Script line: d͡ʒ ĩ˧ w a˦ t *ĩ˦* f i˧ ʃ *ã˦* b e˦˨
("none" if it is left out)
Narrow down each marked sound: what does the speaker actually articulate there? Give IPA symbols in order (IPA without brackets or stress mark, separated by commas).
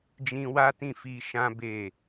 ĩ˦˨, ã˦